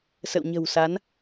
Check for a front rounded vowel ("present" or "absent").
absent